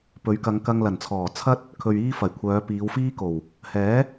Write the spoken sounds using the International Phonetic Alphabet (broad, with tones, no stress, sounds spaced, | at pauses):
p ɵ˨˥ ɥ k ɐ˨˧ ŋ k ɐ˧ ŋ l ɐ˨˩ n t͡sʰ ɔː˨˩ t͡sʰ ɐ˥ t̚ | kʰ ɵ˨ ɥ iː˧ f ɐ˨˩ j kʷʰ œː˨˧ p iː˨˧ w f iː˥ k o˨˩ w | h ɛː˨˥